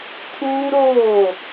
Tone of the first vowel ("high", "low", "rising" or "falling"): high